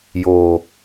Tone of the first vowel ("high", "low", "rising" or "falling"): low